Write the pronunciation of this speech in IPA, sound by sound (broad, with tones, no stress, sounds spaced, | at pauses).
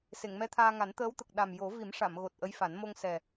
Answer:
s e˨˩˨ ŋ m ɛ˧˥ t̪ʰ aː˧ ŋ a˨˩˦ n t̪ əː˧˥ w t̪ ə˨˩ k̚ ɗ a˨˩ m j o˨˩˦ v i˨˩˦ m ʂ a˨˩˨ m ɣ o˨˩ t̚ ʔ ə˧˥ j f a˨˩˦ n m o˧ ŋ s ɛ˨˩